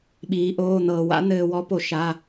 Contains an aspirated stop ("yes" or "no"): no